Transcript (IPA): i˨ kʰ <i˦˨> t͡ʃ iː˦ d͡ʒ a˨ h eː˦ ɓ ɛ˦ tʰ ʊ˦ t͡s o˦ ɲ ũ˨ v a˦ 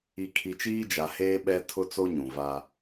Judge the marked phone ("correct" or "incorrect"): incorrect